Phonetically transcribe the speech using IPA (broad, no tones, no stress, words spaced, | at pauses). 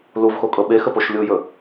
luvxokʼɤ ɓexəpoʃ lʲujɵ